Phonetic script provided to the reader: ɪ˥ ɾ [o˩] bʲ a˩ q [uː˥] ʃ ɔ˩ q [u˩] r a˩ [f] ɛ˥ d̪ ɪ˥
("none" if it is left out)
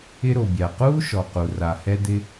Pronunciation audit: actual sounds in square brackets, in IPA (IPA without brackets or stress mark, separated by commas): o˩, uː˥, u˩, h